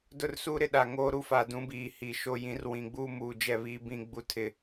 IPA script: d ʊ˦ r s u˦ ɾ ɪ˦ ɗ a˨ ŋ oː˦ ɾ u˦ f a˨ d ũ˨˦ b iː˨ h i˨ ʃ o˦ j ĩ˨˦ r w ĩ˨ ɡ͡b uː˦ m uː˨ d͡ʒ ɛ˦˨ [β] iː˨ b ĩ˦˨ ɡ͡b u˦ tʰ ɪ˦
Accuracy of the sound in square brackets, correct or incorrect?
correct